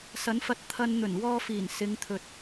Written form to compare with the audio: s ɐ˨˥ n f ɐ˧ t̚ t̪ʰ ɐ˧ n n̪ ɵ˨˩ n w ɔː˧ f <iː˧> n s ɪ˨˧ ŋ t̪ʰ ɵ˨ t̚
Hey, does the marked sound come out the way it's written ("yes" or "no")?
no